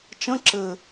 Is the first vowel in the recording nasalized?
yes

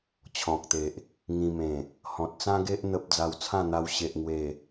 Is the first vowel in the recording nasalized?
yes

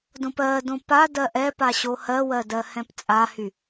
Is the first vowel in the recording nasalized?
yes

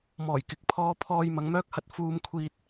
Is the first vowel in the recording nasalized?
no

